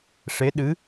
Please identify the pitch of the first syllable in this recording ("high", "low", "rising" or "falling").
rising